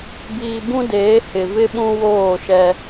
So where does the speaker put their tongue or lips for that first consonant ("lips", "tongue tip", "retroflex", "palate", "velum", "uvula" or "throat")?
lips